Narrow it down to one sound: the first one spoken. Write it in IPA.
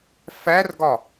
f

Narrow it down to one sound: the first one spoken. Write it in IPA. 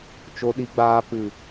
t͡ʃ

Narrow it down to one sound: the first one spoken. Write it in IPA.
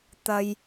t̪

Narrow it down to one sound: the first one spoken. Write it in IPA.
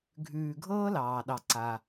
ɡʱ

